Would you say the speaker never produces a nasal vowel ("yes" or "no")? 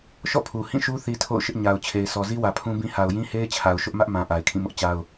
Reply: no